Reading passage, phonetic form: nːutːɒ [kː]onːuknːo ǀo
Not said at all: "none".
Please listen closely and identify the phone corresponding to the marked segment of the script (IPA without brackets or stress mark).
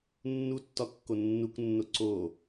kː